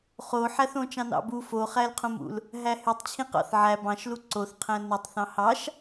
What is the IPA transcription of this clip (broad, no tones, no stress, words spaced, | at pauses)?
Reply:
χoħæθõ t͡ʃɑ̃nɑ̰bu foχælqʰõmṵl | ɦæhytˤt͡ɕʰĩ qɑ̰θʕæ bɑ̃ʃlu ǀoθqʰæ̃ nutˤθɑ̃ hɑʃ